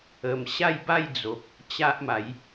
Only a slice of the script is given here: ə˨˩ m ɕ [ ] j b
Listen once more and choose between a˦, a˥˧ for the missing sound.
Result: a˥˧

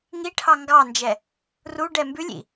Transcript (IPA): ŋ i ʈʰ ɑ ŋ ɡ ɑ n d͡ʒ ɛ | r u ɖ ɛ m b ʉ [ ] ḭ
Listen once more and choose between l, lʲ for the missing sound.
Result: lʲ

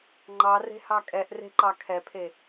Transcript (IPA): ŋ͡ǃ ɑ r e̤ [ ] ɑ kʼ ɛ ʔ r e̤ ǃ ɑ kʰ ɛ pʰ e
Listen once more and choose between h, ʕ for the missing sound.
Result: h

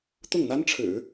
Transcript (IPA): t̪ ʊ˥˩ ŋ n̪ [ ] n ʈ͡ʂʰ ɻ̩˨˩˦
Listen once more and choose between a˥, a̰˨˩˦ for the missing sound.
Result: a˥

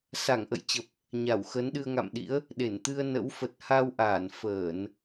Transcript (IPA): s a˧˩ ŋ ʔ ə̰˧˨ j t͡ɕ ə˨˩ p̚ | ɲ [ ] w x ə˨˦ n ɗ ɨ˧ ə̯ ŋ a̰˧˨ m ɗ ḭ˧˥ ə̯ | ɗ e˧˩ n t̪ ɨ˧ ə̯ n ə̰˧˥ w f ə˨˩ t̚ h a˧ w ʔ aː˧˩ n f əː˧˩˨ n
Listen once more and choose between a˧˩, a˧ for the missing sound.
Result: a˧˩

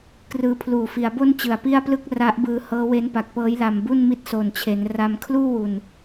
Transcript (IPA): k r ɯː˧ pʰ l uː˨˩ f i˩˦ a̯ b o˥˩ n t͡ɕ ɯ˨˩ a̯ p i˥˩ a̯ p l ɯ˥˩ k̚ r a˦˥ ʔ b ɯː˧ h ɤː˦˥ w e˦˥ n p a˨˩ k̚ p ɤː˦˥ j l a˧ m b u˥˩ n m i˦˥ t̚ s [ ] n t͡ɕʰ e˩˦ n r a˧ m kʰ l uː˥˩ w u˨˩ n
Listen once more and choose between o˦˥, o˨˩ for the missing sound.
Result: o˨˩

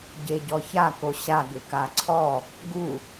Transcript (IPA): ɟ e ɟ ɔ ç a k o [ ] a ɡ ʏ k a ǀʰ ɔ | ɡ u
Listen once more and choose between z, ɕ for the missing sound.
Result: ɕ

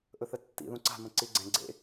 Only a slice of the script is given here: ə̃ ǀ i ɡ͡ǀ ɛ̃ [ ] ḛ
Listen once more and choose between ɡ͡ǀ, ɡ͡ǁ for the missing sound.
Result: ɡ͡ǀ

